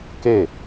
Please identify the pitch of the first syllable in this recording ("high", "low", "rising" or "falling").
falling